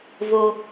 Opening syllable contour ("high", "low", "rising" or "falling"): low